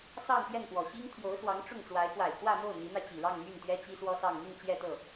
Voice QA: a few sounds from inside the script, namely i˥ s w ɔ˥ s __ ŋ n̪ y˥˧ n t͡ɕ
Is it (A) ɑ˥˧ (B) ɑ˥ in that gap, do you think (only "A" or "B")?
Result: A